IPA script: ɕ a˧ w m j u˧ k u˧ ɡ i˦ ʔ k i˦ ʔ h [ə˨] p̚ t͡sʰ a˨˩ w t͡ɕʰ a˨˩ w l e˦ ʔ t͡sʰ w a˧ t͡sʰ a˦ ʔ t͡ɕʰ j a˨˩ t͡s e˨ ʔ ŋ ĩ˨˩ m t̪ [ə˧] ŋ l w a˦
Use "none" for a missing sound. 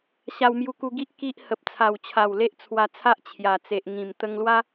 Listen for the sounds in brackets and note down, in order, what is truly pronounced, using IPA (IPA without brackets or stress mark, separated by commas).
ə˨, ə˧